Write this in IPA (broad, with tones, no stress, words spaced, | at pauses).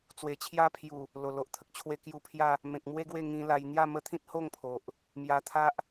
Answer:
t͡swe˨˩t͡ɕʰja˦pʰju˨˩ | lo˨˩lo˨ʔt̪ʰə˨k̚t͡ɕʰwe˦ kju˧pʰja˥˧ | mẽ˨k̚mwe˦ ɡwe˥˧ŋĩ˧la˧j n̪ja˥˧mə˦t̪ʰĩ˦t̚ ho˥˧ŋ pʰo˨ʔ | mja˧t̪ʰa˦ʔ